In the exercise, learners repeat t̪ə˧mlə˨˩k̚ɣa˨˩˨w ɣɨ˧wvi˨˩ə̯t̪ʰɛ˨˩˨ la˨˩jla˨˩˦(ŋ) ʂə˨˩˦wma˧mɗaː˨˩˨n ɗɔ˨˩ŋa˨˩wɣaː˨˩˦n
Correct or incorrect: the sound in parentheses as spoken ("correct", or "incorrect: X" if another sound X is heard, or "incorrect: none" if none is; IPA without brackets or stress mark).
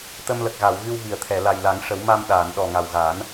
correct